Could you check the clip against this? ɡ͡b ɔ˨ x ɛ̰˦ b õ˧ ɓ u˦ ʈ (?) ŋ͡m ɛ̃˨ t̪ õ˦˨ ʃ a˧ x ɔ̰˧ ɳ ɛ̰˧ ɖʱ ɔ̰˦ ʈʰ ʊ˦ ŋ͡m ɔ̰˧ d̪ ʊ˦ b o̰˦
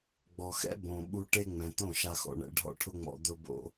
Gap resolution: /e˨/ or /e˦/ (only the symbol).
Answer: e˦